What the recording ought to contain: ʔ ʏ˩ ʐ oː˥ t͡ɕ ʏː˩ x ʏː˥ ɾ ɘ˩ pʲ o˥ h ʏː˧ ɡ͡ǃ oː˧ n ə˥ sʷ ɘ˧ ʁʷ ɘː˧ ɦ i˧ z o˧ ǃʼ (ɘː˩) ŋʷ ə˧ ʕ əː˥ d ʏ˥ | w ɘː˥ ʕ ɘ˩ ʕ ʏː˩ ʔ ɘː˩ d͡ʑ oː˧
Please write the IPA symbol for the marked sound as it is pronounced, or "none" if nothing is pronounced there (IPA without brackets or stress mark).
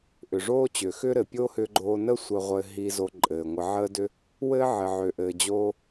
ɘː˩